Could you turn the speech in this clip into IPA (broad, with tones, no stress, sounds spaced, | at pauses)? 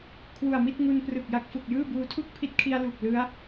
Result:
kʰ w u˨˩ a̯ m i˥˩ t̚ ŋ u˧ n p r ɯ˨˩ k̚ j a˦˥ k̚ f u˨˩ k̚ j ɯː˥˩ b uː˧ tʰ u˥˩ k̚ pʰ i˦˥ t̚ kʰ i˧ a̯ l u˨˩ k̚ l ɯ˦˥ a̯